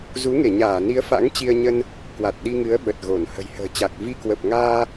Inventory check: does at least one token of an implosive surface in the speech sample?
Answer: yes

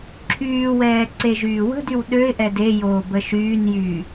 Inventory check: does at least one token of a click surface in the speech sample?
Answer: yes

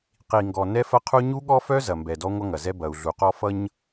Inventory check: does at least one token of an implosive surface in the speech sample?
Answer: yes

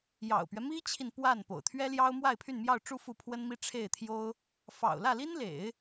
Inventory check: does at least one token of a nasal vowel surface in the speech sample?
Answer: no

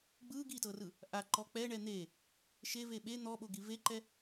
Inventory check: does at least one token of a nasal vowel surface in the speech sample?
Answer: no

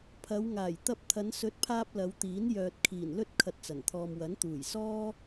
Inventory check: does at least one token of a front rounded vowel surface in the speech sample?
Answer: yes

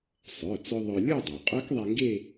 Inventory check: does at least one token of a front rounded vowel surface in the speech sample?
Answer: yes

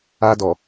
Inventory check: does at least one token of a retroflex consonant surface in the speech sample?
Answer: no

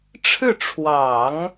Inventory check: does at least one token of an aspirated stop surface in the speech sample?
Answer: yes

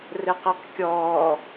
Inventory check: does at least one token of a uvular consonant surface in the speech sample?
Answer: yes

